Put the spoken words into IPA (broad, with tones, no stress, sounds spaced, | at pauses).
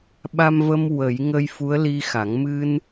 ɓ a˧ m v ə˧ m w ə˨˩˦ j ŋ ə˧ j f u˧˥ ə̯ l i˧ x a˨˩˦ ŋ m ɨ˧ n